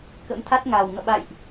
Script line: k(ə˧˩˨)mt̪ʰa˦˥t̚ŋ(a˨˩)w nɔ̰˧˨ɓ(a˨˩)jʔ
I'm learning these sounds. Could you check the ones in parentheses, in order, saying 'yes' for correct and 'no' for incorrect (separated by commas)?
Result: no, yes, no